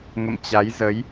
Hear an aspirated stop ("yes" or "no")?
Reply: no